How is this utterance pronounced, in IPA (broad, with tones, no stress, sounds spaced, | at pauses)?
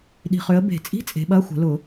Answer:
ɗ i̤˨ χ ø˨˦ ə̯ b e̤˨˩˦ t͡sʼ i̤˧˥˧ t͡sʼ e̤˨˦ ɓ ɐ˧˥˧ xʷ ə̤˨˩˦ l ʊ˨˩˦